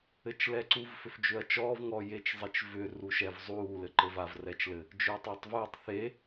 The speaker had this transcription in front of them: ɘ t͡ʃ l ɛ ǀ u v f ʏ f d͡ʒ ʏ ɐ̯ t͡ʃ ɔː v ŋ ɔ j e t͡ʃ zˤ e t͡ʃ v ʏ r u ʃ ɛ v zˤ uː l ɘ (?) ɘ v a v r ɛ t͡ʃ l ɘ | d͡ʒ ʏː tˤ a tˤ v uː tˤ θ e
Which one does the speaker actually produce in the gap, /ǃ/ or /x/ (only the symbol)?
ǃ